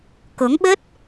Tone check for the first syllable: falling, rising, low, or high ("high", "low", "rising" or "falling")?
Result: rising